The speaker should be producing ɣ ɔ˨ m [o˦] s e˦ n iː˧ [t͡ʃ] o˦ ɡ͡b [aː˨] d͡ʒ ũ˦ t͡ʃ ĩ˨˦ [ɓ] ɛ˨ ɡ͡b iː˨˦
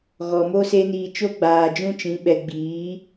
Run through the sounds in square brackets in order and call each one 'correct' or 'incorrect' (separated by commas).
correct, correct, correct, correct